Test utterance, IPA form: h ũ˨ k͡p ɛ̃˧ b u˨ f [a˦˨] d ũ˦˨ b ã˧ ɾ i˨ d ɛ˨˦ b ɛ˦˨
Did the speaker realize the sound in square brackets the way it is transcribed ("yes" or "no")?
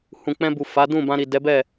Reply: no